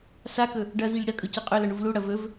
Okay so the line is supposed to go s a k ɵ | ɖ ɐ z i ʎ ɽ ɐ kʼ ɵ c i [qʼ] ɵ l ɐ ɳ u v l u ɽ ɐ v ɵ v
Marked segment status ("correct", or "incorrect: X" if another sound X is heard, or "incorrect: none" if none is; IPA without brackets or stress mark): correct